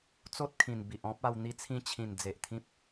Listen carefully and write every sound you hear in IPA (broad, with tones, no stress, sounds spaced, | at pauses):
t͡s o˦ t̚ kʰ ĩ˨˩ n b i˨ ʔ ɔ̃˦ p̚ a˧ w n̪ i˧ t͡sʰ ĩ˧ t͡ɕʰ ĩ˨˩ n d͡z e˨ ʔ t̪ʰ ĩ˦ p̚